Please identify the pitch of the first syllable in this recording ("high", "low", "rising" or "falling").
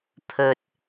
low